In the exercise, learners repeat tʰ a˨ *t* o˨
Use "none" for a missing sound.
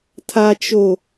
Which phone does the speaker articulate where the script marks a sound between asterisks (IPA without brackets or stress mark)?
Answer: t͡ʃ